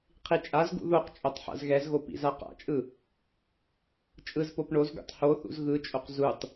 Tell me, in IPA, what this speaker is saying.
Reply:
qʰit͡ʃʼazɡṵ ðoqt͡ʃʼotˤ ħa̰zɣɛzɣo pḭzaqa̰t͡ʃʼɯ | t͡ʃʼɯzpop ɳozɡṵtˤ ho θṵzɣɯt͡ʃʼoq zutˤ

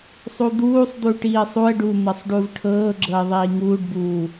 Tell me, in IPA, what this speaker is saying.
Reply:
sˤud̪uːsˤd̪uːʈ iːsˤuə̯ɖuː n̪ɤsˤɖuvʈʰɤːɡ͡ǁɤə̯ ðˤiːŋuːɖbuː

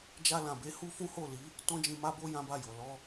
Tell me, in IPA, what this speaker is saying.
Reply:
d͡ʒa˧lã˨be˧ hu˦ fũ˦ho˦˨li˨˦ | tɔ̃˦d͡ʒĩ˧ma˦bo˦ jã˦ba˦˨jo˨ lɔ˧

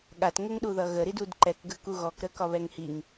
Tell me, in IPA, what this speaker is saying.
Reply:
ɠatŋəŋɗuðʌ ɣəɾidud ǃɛkɡəku ɣɔkɾəkɒβɛŋ hiŋ

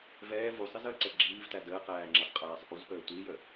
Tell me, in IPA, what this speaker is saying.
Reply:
vɛː vusˤizəːǀɛ ɡ͡ǁiːvtæ dəːqæːŋ͡ǁesˤqʼæːsˤ ʔuzpəː tʷijə

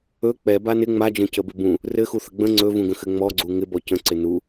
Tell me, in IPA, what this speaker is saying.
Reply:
ɵ k͡pɛ banɪ ŋ͡mad͡ʒə̃ cəbɪbũ | rɘ xuθəɡ͡bə̃ ŋ͡ǀɵvũɡə̃xɘ ŋ͡mɔɡ͡ǀu ŋɪbɔ cə̃ǀɪ nu

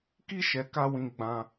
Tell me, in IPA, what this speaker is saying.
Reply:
ki˦ʃɛ˨ka˧ wĩ˧ɡ͡bã˧

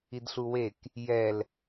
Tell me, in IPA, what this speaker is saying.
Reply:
idɬuwek | jɛl

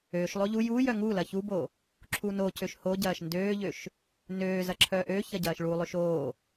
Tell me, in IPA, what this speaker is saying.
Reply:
øːʃlˠo ʎu juː jœŋulɐ çubo | ǁʰunocøʃ hoɟɐːʃ ndøːʎøʃ | nøːzɐ ǁʰœːʔøçɐ ɟɐːʃɭulˠøʃ oː

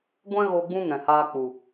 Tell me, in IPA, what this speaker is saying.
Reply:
ɡʷɛ̃˦ɣo˧ ɡ͡bũ˦ŋɛ̃˨haː˧k͡pu˨

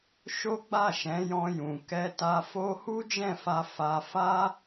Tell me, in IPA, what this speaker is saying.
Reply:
ʃo˦ɡ͡ba˦˨ʃɛ̃˨˦ jɔ̃˦jũ˧ kɛ˧ta˧ fo˦ hu˦d͡ʒɛ̃˦˨fa˧ fa˦ fa˦

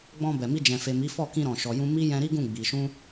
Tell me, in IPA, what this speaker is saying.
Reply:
ɡ͡bɔ̃˧bɛ˨mi˧ d͡ʒɛ̃˨fe˨ mi˨˦fɔ˦˨ kĩ˧ɾɔ̃˨ʃɔ˨jũ˧ mi˦jɛ̃˧ɾi˦ɡũ˦˨ ɡ͡bi˧ ʃũ˦

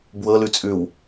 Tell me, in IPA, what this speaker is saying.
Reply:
bwɤlʉt͡sʼʉw

